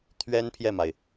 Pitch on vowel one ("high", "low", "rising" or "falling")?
high